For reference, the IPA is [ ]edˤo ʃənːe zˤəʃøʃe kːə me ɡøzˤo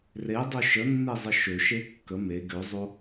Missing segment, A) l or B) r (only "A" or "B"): B